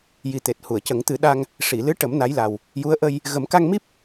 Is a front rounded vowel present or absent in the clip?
absent